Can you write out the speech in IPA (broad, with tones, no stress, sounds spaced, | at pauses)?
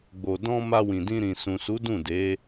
ɡ͡b o˨ d ɔ̃˧ m a˧ w ĩ˨ d ĩ˧ ɾ ĩ˨ s ũ˨ s u˨˦ d ũ˦˨ d e˨˦